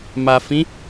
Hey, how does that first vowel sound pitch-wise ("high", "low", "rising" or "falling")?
low